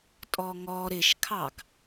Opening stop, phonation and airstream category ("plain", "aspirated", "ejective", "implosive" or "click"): ejective